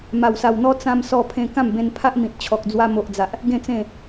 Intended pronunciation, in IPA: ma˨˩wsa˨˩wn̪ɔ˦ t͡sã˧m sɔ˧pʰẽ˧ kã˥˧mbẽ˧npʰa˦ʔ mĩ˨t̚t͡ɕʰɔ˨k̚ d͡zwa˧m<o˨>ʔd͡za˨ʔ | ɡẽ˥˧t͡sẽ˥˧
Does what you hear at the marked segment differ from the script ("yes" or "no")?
no